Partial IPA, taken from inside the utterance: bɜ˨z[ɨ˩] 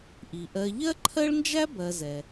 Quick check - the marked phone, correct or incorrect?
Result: incorrect